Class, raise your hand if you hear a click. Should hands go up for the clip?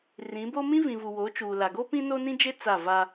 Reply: no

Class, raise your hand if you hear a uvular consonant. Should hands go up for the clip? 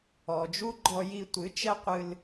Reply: yes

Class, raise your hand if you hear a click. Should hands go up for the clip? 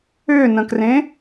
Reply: no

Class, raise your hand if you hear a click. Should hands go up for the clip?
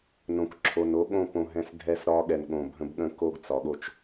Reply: yes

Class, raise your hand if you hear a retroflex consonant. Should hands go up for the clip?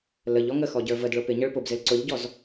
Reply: yes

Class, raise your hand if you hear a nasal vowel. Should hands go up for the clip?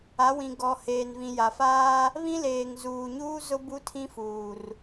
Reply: yes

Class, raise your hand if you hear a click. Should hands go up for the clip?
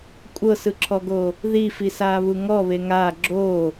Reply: yes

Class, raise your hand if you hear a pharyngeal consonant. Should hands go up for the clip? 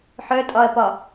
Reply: yes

